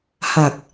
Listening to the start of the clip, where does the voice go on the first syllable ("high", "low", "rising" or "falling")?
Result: low